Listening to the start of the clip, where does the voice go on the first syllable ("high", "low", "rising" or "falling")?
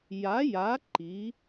rising